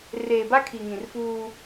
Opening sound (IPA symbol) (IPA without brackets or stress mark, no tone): r